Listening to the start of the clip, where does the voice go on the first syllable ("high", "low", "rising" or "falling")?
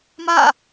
falling